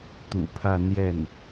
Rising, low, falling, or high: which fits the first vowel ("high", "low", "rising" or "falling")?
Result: low